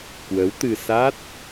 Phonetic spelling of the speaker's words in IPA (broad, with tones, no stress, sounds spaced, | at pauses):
k w ə˨˦ w t̪ ɨ˧ s a˦˥ t̚